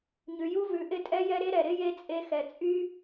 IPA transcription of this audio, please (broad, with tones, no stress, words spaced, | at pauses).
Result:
ɲʉ˨ju˦ vʉ˨ʔɪ˦ tʼɛ˦jɛ˦ɾe˦ ɾɛ˨ɾɪ˦ je˦t͡sʼe˦xɛ˧ t͡sʼy˦